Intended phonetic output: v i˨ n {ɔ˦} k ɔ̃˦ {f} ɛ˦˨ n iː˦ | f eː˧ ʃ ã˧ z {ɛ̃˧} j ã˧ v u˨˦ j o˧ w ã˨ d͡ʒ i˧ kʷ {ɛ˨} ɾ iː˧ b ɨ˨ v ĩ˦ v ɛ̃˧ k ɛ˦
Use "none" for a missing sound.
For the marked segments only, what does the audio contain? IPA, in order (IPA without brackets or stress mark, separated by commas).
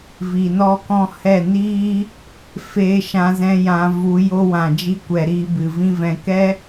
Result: ɔ˦, h, ɛ̃˧, ɛ˨